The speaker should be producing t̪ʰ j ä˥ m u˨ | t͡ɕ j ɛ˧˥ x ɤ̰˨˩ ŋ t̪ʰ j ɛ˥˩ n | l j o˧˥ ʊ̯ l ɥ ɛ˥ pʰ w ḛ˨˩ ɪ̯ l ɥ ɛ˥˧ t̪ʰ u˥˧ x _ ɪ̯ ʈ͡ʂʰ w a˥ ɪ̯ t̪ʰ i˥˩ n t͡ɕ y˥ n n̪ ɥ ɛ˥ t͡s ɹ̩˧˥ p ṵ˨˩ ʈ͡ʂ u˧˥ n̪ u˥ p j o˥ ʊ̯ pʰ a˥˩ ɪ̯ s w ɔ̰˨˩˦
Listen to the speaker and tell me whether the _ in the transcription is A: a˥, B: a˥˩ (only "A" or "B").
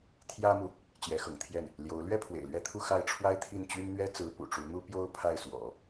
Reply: B